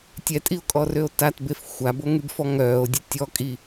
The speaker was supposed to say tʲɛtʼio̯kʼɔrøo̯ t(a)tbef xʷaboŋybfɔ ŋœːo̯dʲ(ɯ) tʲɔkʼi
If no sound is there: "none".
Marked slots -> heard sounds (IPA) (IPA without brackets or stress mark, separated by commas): a, ə